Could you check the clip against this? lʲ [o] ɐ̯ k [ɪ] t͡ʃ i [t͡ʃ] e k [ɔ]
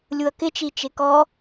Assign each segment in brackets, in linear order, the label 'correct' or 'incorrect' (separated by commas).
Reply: incorrect, correct, correct, correct